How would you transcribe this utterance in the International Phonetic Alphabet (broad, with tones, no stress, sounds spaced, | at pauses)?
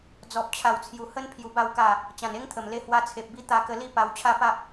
d͡z ɔ˨ p̚ t͡ɕʰ a˨˩ w t͡sʰ j u˨˩ h ə˦ n pʰ j u˨˩ b a˥˧ w k a˥˧ | t͡ɕ ã˨˩ n e˦ ŋ t̪ʰ ə˨˩ m l e˧ h w a˧ t͡sʰ e˨ p̚ b i˦ t̪ a˧ k ə˧ l i˥˧ p a˧ w t͡ɕʰ a˦ p a˦ p̚